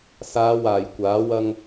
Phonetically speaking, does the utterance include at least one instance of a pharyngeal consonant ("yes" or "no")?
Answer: no